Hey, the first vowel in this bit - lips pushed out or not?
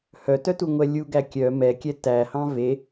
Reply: yes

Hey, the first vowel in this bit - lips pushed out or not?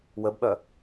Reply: no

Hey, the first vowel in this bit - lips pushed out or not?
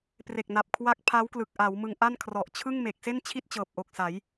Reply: no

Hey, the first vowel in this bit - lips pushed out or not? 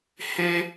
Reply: no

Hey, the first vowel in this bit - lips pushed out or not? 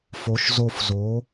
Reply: yes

